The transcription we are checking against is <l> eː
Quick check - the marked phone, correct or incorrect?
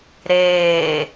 incorrect